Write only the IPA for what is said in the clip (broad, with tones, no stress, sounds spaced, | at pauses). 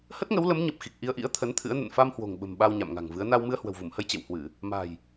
h ə˦˥ t̚ ŋ ə˨˦ w l ə˨˦ m ɲ ə˨˩ p̚ x i˨˩ k̚ ʔ i˧ ə̯ ʔ ḭ˧˥ ə̯ t̪ʰ ə˨˦ n t̪ʰ ɨ̰˧˥ ə̯ n ə̰˧˨ n f a˧ m h w o̤˨˩ ŋ ɓ ə̤˨˩ m ɓ a˧ w ɲ a̰˧˨ m ŋ a̤˨˩ ŋ v ɨ˨˦ ə̯ n a˧ w m ɨ˧ ə̯ h w ə̤˨˩ w v u˧˩ m h ə˧ j t͡ɕ ḛ˧˨ w h w ɨ˧˩˨ | m a̤˨˩ j